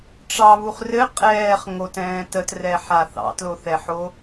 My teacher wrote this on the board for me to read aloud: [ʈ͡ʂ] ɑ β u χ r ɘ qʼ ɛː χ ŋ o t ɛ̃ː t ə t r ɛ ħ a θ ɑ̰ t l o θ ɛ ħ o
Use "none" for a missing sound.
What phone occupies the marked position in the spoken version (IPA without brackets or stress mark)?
ʈ͡ʂ